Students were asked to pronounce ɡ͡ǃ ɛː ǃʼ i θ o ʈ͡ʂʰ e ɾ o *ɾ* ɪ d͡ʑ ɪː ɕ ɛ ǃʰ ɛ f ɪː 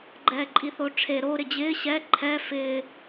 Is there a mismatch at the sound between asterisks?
no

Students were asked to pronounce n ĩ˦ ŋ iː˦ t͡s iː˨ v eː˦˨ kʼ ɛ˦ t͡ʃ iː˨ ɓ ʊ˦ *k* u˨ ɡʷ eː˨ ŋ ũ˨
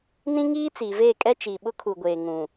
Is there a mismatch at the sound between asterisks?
yes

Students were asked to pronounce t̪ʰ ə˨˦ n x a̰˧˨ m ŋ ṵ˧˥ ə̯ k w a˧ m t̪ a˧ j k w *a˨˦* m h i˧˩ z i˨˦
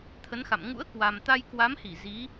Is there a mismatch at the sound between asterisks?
no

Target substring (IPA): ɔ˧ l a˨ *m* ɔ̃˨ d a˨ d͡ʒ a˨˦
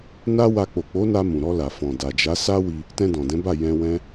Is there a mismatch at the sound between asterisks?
yes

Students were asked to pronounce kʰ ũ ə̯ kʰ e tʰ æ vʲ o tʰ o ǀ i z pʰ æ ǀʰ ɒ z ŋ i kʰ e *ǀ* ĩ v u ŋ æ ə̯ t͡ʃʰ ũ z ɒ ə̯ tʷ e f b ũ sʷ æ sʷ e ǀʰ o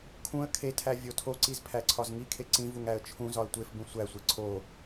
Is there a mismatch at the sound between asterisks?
no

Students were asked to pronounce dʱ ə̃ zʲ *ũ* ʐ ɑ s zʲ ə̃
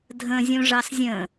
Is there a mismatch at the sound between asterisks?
no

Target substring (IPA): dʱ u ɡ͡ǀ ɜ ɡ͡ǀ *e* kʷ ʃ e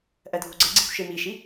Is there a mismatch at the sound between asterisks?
yes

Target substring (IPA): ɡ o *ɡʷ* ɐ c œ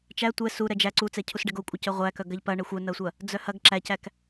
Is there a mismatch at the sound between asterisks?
yes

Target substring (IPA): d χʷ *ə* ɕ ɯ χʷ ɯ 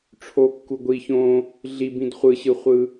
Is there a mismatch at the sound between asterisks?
yes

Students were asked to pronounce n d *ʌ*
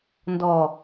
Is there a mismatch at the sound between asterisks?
yes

